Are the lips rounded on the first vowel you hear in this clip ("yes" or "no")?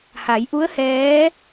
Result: no